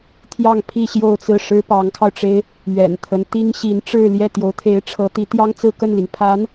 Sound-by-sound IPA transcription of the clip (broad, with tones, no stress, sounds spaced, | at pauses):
t̪ʰ j ɑ˥˧ ŋ pʰ i˥˧ ɕ j o˥˧ ʊ̯ t͡s ɹ̩˥˩ ʂ ɻ̩˥ p ɑ˧˥ ŋ kʰ ɑ˧ ʊ̯ ʈ͡ʂ e˥ ɪ̯ | ɥ ɛ̰˨˩ n t̪ʰ ə˦ n t̪ i˥ ŋ ɕ i˧˥ n ʈ͡ʂ ɻ̩˥˧ l j ɛ˥˩ t̪ j o˧˥ ʊ̯ t̪ʰ e˧˥ ɪ̯ ʈ͡ʂʰ ɤ˧˥ t̪ i˧˥ t̪ j ɑ˥ ŋ t͡s ɹ̩˥˧ k ə˥˩ n l i˩ ŋ pʰ a˧˥ n